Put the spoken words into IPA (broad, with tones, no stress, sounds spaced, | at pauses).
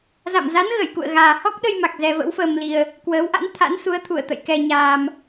z a̰˧˨ m z a˨˦ n ɣ ə˧˩ j k ṵ˧˨ ə̯ ɣ aː˨˩ h ɔ˦˥ k̚ ɗ ə˧ j m a˨˩ k̚ z ɛ˧ v ə̰˧˥ w f əː˧ m l i˧ ə̯ | k w əː˨˦ w ʔ a̰˧˥ n t̪ʰ a̰˧˥ n s u˨˦ ə̯ t̪ʰ u˧˩ ə̯ t̪ ə̰˧˨ j k ɛ˧ ɲ aː˧ m